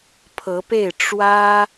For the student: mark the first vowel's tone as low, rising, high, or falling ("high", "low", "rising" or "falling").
rising